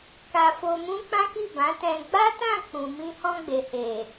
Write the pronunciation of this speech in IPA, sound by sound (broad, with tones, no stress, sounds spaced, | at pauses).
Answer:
k a˧ f o˧ m ũ˦ k͡p ã˦ k i˦˨ b ã˨˦ t ɛ̃˧ ɡ͡b a˦ t ã˦˨ k͡p ũ˨ m ĩ˧ h ɔ̃˧ ɡ͡b e˨ h e˨